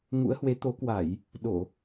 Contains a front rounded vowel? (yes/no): no